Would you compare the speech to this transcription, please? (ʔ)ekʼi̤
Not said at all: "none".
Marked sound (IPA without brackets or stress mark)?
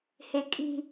h